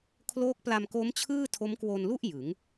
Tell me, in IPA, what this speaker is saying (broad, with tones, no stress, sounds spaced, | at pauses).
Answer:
kʰ l oː˦˥ k̚ p l a˧ m k o˦˥ m t͡ɕʰ ɯː˥˩ tʰ o˦˥ m k w o˧ n l u˥˩ ʔ j ɯ˩˦ ŋ